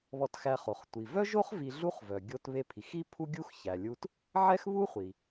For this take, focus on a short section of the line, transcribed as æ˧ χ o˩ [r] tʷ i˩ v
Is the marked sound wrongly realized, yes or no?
yes